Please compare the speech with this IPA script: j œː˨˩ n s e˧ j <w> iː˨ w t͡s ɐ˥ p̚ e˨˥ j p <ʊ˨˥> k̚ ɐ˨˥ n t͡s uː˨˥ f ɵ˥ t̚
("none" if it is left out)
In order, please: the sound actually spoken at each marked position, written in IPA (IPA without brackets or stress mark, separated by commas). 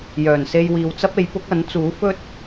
w, ʊ˨˥